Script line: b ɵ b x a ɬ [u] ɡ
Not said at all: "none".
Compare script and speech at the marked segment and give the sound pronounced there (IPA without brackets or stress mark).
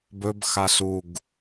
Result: u